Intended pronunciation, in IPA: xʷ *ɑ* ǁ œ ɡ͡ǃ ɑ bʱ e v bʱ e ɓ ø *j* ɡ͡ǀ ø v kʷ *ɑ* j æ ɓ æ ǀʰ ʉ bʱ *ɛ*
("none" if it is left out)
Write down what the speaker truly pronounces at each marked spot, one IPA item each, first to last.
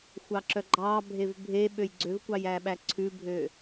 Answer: ɑ, j, ɑ, ø

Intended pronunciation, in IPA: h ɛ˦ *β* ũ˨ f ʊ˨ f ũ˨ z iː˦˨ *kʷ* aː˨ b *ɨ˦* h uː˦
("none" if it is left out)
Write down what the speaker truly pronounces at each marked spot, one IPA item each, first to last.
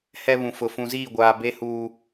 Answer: β, ɡʷ, e˦

